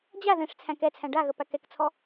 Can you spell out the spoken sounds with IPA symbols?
d͡ʑ a ð ɛ̃ ʂ t͡sʰ æ̃ k ɛ t͡sʰ æ̃ ɖ a ɣ ə p æ k ɛ k t͡sʰ ɔ

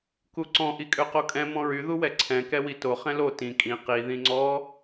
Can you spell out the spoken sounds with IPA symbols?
k u ǀ ɔ̃ ʔ i kʼ ø q o kʼ ɛ̃ m ɔ̃ ɹ y ð u w ɛ ǀʰ ɛ̃ k ɛ w i t o χ ɛ̃ l o t ĩ kʼ ĩ q i ð ĩ ŋ͡ǀ ɔ

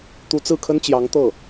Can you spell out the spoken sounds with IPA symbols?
t̪ u˧˥ t͡s ɹ̩˥˩ kʰ ə˥ n t͡ɕ j ɑ˧˥ ŋ t̪ ɤ˥˩

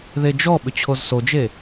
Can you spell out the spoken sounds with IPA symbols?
ð e d͡ʒ ɔ ɓ ʏ t͡ɕʰ o z s o d͡ʒ e

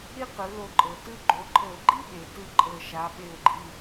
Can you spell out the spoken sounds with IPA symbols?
ɾ i˥ q ɯ˩˧ l o˧˩ ǃʼ ɤ˩ t ɯ˥ ɡ͡ǃ o˩˧ ǃʼ ɤ˧˩˧ ɡ͡ǃ i˥ ɓ e˩ t ɯ˥ ǃʼ ɤ˧˩ ʃ a˩˧ ɓ e˧˩ ʊ̯ ɡ͡ǃ i˩˧˩

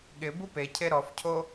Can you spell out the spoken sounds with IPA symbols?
ɠ ɪ b u p e cʰ e ɾ ɔ f cʰ o

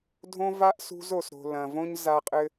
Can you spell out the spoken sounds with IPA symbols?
dʱ õ˦ v a˦ ʔ s ṳ˦ z o˨ s ɾ o̤˨ l ɐ̃˨ v õ˦ ɲ z a˦ qʼ ɘ˦

